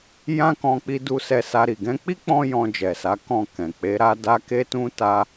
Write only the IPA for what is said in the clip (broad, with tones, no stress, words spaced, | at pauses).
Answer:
jã˦kɔ̃˧k͡pi˧du˧ sɛ˧sa˧ɾi˨ ɡɛ̃˧k͡pi˦k͡pɔ̃˧ jɔ̃˧d͡ʒɛ˨sa˨˦ kɔ̃˦˨kɛ̃˨ k͡pe˨˦ɾa˦ da˦ke˦tũ˦ ta˦